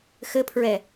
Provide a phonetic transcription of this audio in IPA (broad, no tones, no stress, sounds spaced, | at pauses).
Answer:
x ɘ pʰ ɹ ɛ